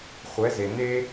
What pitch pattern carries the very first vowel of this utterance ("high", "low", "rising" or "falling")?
rising